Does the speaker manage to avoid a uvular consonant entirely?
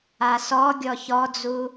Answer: yes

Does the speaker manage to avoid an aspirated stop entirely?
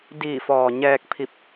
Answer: no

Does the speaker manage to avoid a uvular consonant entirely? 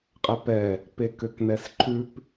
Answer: no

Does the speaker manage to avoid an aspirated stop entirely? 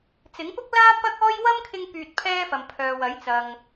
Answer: no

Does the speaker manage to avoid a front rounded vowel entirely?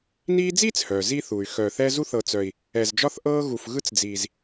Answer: no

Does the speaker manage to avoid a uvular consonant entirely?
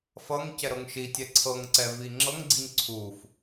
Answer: yes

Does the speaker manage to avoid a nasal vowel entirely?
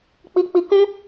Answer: no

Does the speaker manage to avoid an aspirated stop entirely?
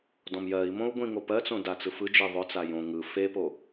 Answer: yes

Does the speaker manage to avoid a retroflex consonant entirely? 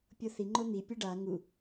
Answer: no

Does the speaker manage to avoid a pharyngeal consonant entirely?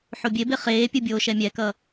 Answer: no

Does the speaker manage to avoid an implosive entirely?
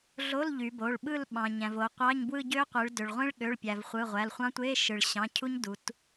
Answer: no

